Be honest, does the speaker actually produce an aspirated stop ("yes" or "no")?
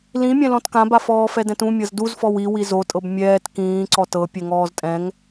no